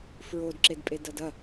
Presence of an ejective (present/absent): present